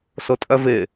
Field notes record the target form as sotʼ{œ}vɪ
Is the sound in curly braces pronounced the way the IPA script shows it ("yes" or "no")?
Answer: yes